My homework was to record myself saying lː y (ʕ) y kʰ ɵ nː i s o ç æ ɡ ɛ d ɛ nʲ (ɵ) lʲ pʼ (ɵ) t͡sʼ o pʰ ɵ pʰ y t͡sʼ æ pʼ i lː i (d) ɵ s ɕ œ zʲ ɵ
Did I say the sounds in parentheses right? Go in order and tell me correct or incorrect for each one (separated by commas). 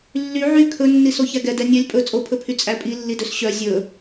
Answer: correct, incorrect, correct, correct